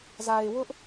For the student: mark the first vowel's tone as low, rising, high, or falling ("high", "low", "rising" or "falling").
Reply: low